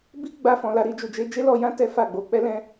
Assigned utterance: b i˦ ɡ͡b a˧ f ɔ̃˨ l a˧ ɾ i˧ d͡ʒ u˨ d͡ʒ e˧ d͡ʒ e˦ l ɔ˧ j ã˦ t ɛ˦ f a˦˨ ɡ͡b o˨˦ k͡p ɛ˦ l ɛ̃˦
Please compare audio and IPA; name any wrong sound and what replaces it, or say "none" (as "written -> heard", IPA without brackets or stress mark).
none